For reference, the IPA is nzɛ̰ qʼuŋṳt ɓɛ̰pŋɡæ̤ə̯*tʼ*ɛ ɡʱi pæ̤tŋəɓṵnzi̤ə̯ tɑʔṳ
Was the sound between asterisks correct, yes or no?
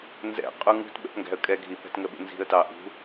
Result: no